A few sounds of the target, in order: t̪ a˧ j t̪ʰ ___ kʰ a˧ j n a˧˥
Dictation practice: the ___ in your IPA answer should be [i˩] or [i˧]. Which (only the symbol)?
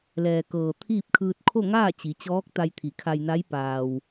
i˩